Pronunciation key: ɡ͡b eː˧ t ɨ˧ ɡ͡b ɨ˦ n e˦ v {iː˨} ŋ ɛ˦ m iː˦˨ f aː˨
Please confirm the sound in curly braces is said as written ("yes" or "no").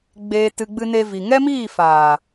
no